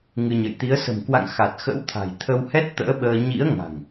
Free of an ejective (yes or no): yes